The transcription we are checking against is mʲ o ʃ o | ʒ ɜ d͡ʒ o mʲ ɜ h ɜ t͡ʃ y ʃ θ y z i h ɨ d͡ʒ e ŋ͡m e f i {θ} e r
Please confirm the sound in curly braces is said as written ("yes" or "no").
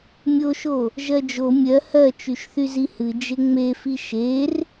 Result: no